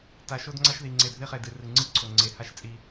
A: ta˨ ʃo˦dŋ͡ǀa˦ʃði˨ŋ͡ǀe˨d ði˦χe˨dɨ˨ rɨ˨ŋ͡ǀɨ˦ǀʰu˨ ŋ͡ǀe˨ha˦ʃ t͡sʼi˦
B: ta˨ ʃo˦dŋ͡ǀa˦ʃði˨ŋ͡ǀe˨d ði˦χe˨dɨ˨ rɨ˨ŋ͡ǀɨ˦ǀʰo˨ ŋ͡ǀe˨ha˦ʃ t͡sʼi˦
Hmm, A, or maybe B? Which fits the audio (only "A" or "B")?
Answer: B